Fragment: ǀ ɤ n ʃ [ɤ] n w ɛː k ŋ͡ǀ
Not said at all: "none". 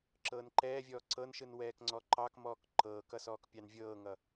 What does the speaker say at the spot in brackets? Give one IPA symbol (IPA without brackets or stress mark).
ɯ